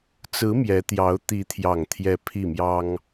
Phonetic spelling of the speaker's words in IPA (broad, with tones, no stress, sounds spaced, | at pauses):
t͡s ɹ̩˧˥ m j ɛ˧˥ t̪ j ɑ˧˥ ʊ̯ t̪ i˧˥ t̪ʰ j ɑ˨˩ ŋ t̪ʰ j ɛ˧˥ pʰ i˥˩ m j ɑ˥ ŋ